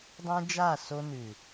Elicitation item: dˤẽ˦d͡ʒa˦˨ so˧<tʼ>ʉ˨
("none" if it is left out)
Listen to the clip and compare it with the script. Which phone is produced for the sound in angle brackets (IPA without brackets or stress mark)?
n